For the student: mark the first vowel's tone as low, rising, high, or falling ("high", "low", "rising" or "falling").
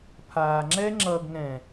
low